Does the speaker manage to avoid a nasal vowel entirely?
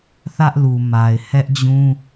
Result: no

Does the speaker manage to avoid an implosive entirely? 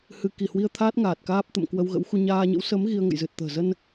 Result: yes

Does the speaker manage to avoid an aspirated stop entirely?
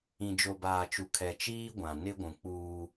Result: no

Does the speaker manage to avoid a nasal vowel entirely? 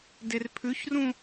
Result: no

